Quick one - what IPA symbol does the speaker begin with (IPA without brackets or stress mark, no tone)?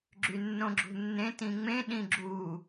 ɡ͡ǁ